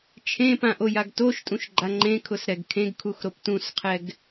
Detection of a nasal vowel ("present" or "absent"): present